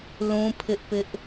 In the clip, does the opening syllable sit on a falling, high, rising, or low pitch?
high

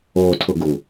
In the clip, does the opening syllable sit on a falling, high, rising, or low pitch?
low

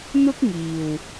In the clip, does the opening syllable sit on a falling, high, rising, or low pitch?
high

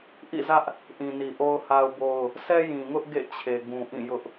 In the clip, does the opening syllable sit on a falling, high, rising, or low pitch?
falling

